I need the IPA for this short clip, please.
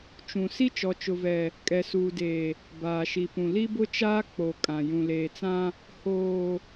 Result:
t͡ʃũ˨ si˦t͡ʃɔ˨t͡ʃʊ˨vɛ˨ | kʼɛ˨suː˨deː˨ | baː˨ʃi˨pũ˨ li˦bʊ˦t͡ʃaː˦ k͡po˨ kʼã˨ jũ˨leː˨t͡sã˦ | hoː˨

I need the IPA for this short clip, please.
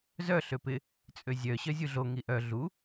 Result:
zœ ɬøpɪ | t͡sʼøzʲœ ɕœzʲuɮo ŋiʔœ ɮu

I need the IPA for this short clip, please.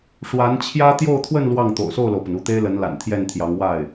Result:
ʂwa˧˥nt͡ɕʰjä˥ t̪jo˥˧ʊ̯t̪ʰwə˥˧n lwɑ˥˩ŋ t̪o̰˨˩ʊ̯so˥˩ʊ̯lo˩ʊ̯pə˩n u˥˩t̪e˥ɪ̯lə˧˥nla̰˨˩n t̪ʰjɛ˥˩nt̪ʰjɑ˧˥ŋwa˥˩ɪ̯

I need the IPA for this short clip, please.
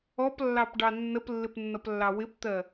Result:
ɔplːɑpɖɑ nːəplːɪpnːʌplːɑ wɪpt̪ɜ

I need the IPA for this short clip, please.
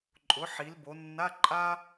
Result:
ǃʼʊ˩˥ ħi˩˧lbo˩˧ nːa˧˥˧ ǃʼa˥

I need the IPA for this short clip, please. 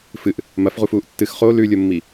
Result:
fɨʔ | mɐfʁufuːʔ tːɨx χo lʉlʲomːi

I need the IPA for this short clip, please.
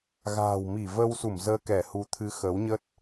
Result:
ɣa̤ː˨˩wmi˧˩və˧wsu˧˩m zəː˧kɛ˧˩hu˨˦t̪ʰɨ˨˦ xə˨˦wɲə˦˥t̚

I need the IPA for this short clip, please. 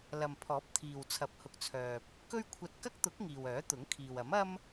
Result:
lɐ˨mpʰɔː˨˥p̚ t̪ʰiː˨wt͡sʰɐ˨˥p̚hʊ˨k̚t͡sʰœː˨p̚ | kɵ˥ɥkʷʰɐ˧t̚ kɐ˥k̚t̪ʊ˨˥k̚ ŋiː˨wœː˨˥t̪ʊ˨˥ŋkʰiː˨w ɐ˨˥mɐ˥m

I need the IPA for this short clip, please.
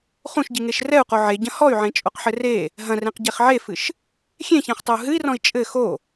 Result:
χũʃɟiŋeʃ rɛu̯qo ʕeɟɐ̃ hɔy̯ʕẽt͡ʃʼoqħɘ re | ɦɐ̃rẽqɟeχ ʕefɨʃ | xʲẽçɛ̃χtˤɘu̯ ɦɨi̯rɔ̃i̯ t͡ʃʼɘ xo

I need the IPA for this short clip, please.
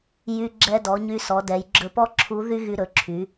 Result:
jy˧ ɡ͡ǁɛ˧dɔ˩˧ ɲy˧sɔ˩˧dɛ˩˧j ɡ͡ǁɵ˧pɔ˥ ǁʰu˧˥ ðy˥ɣy˧ɾɵ˩˧ǁʰy˩˧

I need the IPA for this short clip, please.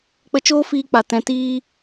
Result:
k͡pə˧t͡ʃoː˦fiː˧k͡pa˨ tɛ̃˨tiː˧

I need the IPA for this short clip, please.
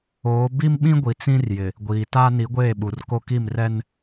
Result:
oː˨˦ bi˦mɓĩ˦ ɡʷi˨t͡sĩ˦rjɪ˨ | ɡʷiː˨ta˦ ni˨˦ɡʷeː˦˨ɓu˨r ko˦ki˦˨mrɛ˦n

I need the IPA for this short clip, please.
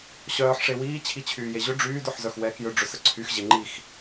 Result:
ɕœːħ ʂewiː t͡ɕʰit͡ɕʰyːjeʑʏ ɖ͡ʐyːd ʊħzœxwɛːkjʏ ɖ͡ʐʏsəǀʰyx ʑeŋ͡ǃix

